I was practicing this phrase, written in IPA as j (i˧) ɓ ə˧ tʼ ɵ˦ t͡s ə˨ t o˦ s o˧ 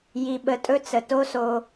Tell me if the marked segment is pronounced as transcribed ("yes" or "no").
yes